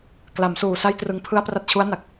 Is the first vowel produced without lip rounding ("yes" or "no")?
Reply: yes